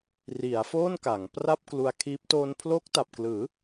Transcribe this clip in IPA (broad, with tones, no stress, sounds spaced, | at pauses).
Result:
r i˩˦ a̯ f oː˥˩ n k a˩˦ ŋ p r a˥˩ p̚ k l u˧ a̯ kʰ iː˦˥ p̚ t oː˧ n pʰ l o˦˥ k̚ t a˨˩ p̚ k l ɯː˩˦